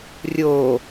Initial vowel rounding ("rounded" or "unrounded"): rounded